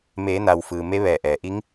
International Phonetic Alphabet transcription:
m eː˩˧ n a˩ w f ɯː˩ m e˧˥ ʋ ɛː˧˩ ʔ ɛː˩ ʔ i˧˥ ŋ

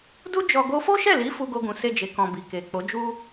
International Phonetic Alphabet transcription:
d u˦ d͡ʒ ɔ˧ ɡ o˧ f o˦ ʃ ɛ˦˨ l i˨˦ f u˦ ɡ o˦ ɡ ũ˧ s e˦ d͡ʒ e˧ k ɔ̃˧ b i˨ k e˨ k͡p o˨˦ d͡ʒ u˦

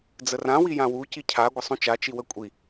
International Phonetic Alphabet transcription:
d͡z ə r ã w i j ã w u c i cʰ a ɡʷ ə sˤ ũ t͡ʃ a t͡ʃ i w ə kʷʼ i

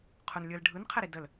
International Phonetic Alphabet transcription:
qʰ ʊ n lʲ ɯ l ɖʱ ɯ n qʰ ɛ ɾ i d ə l

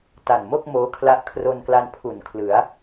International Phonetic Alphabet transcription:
t a˨˩ n m o˥˩ k̚ m oː˦˥ kʰ l a˦˥ ʔ kʰ r o˧ n k l a˧ n pʰ u˨˩ n kʰ l ɯ˩˦ a̯

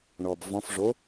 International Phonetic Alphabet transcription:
ɳ ɔ b v ɔ̃ f ʐ o

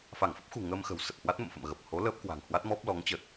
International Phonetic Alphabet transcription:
f a˧˩ ŋ f ə˦˥ p̚ x ṳ˨˩ ŋ əː˧ m x ə̤˨˩ w s ə˨˩ t̚ h w a˦˥ t̚ m ə̰˧˨ m f ə̰˧˨ m ɣ ə˨˩ p̚ h o˨˦ l əː˦˥ p̚ k w a̤˨˩ ŋ h w a˦˥ t̚ m ɔ˦˥ p̚ l ɔ˨˦ ŋ t͡ɕ ə˨˩ t̚

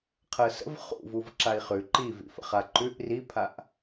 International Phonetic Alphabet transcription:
qʰ ə s ə̰ v χ ṵ v u v ǁ a i̯ χ ʉ ǃ i v ḭ f ə̰ χ a ǃ ʉ ʔ r i pʰ a ʔ

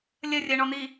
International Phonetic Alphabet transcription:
lʲ ə rʲ ɜ ɳ ɔ n̪ i

